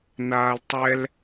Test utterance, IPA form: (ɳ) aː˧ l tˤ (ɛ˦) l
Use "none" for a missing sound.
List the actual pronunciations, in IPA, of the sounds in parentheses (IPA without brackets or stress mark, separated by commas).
n, ɛ˦